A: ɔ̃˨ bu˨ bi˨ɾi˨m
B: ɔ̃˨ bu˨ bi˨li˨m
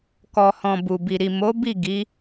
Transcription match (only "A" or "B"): A